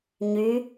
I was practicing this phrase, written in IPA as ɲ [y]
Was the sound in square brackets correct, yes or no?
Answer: yes